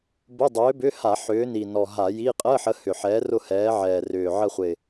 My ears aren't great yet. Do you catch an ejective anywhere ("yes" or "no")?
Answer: yes